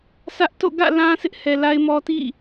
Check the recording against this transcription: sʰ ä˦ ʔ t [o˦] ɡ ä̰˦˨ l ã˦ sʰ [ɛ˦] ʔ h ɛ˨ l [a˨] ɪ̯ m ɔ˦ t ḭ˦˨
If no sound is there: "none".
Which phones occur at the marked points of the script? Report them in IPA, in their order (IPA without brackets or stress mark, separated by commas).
o̰˦˨, ɪ˦, a˦